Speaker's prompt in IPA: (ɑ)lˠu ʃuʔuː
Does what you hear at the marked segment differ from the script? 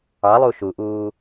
no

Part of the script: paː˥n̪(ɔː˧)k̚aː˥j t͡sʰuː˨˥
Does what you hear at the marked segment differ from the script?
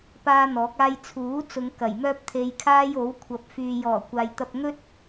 yes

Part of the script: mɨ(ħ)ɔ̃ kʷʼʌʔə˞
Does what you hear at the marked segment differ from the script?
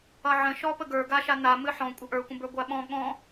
no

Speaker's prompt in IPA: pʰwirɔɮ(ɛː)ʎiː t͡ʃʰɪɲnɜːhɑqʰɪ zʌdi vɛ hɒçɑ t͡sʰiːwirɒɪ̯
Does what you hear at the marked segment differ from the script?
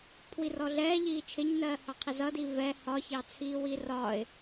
no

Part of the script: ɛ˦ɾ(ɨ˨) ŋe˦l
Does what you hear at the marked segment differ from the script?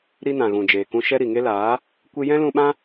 yes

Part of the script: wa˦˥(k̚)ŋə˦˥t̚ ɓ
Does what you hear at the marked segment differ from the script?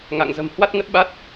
yes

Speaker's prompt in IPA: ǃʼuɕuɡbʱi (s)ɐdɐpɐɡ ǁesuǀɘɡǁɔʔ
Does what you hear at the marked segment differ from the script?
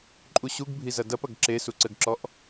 yes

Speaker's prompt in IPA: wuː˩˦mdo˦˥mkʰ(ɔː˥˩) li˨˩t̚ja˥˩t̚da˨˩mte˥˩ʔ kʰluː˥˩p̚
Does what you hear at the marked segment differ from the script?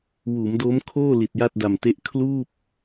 yes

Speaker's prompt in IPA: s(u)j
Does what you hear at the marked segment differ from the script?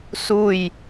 no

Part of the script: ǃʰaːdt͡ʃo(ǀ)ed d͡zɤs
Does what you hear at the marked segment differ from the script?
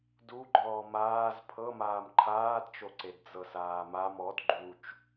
no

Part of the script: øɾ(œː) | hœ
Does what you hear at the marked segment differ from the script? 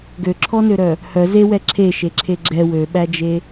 yes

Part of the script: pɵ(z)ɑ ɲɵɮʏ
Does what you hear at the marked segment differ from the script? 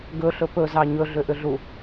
no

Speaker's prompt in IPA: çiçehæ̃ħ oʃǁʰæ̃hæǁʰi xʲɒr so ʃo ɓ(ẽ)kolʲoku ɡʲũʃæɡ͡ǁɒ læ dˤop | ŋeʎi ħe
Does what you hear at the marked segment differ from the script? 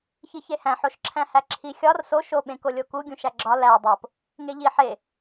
no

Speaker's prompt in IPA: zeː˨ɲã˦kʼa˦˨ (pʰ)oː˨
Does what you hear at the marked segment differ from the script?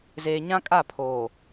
no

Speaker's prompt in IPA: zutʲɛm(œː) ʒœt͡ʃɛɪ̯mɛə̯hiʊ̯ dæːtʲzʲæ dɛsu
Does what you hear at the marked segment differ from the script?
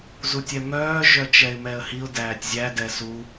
no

